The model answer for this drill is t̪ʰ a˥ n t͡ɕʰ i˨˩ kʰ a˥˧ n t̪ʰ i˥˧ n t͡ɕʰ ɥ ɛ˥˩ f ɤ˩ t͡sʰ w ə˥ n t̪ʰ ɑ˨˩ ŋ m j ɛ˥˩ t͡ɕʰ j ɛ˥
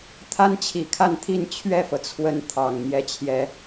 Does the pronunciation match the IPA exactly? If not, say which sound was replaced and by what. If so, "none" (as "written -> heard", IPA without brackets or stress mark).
none